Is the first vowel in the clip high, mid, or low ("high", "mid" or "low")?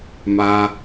low